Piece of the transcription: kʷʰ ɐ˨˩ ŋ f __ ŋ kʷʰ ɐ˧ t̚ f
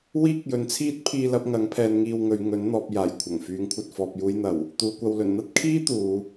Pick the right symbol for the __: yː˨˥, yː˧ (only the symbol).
yː˨˥